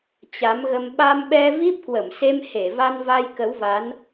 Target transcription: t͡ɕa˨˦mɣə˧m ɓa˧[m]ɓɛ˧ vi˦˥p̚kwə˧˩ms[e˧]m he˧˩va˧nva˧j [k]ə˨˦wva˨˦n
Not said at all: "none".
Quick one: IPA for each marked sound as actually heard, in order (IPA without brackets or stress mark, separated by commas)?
m, e˧, k